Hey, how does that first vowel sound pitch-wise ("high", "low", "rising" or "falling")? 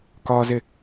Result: high